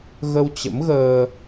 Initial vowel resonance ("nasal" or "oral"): oral